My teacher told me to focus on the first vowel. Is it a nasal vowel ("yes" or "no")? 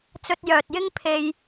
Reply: no